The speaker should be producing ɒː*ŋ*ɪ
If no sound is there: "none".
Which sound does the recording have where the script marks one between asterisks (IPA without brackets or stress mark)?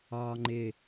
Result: ŋ͡ǃ